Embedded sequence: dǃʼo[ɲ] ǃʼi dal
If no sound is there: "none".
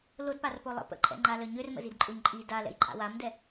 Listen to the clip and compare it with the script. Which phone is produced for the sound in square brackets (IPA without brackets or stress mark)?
ɲ